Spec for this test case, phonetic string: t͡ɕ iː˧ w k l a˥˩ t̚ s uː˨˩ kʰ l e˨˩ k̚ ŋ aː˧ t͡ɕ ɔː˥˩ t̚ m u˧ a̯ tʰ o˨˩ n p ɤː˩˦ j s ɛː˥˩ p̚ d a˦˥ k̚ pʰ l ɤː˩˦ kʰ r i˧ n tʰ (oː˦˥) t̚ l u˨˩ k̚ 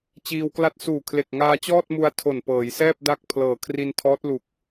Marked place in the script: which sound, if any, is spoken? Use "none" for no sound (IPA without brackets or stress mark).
ɔː˦˥